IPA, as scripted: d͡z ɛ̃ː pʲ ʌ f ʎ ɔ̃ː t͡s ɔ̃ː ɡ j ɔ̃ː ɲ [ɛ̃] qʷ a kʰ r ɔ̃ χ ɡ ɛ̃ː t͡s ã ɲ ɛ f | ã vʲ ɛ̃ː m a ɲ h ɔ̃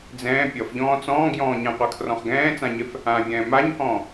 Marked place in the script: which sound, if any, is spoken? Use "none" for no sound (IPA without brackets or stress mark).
ɛ̃